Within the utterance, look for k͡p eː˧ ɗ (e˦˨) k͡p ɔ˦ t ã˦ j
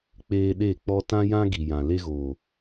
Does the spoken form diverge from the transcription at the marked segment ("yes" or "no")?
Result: no